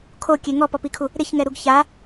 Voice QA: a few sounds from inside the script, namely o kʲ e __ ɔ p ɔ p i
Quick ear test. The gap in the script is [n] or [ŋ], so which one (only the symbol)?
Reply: ŋ